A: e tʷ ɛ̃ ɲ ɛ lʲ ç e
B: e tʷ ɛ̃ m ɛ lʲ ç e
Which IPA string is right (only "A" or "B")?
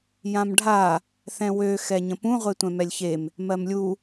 B